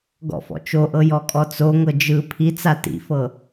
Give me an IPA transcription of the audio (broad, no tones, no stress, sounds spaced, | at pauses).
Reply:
ɡ ɔ̰ f ɔ̰ t͡ʃ o ʔ ɤ j ɔ kʼ ɔ t͡s o ŋ ɤ d͡ʒ ɯ pʰ i t͡s a t ḭ f ɤ